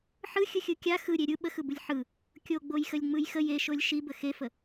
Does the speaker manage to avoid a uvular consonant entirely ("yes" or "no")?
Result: yes